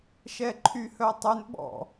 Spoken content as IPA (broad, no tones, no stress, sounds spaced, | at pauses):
ʃ ɛ ǃʰ y h œ tˤ ø n ɓ ɔ̰